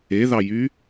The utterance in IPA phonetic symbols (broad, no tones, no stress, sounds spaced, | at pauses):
e ð ɑ j y